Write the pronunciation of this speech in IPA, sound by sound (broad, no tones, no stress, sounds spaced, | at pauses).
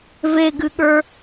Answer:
v e ɡ ɨ ɠ ə˞